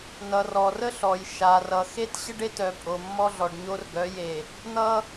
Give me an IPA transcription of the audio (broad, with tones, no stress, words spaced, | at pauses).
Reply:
nʌ˨rɔ˨rə˦ ɬɔ˨jʃa˨rʌ˨ xe˦tɕə˦ɖ e˦tœ˨ pʼo˨mːɔ˦ɮɔ˨ɖ ɲo˦rɡœ˨˦je˨ | n̪ʌ˦